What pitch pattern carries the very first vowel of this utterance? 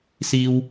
high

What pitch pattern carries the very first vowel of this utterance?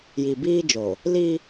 low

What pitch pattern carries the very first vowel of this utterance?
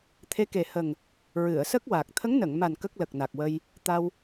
rising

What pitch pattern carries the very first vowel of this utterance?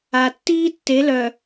low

